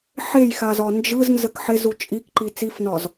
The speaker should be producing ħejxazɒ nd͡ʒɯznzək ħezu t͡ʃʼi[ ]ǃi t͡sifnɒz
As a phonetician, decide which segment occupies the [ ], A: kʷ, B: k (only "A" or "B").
B